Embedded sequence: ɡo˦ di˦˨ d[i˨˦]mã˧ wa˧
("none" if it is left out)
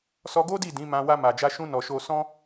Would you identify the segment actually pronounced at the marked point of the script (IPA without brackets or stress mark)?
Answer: ĩ˨˦